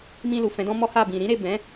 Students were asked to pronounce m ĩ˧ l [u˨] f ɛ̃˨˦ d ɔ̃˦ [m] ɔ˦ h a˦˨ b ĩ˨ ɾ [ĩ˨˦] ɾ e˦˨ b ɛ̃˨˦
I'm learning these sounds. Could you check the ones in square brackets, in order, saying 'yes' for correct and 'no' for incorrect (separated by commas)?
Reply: yes, yes, yes